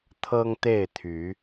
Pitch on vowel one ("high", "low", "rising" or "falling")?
high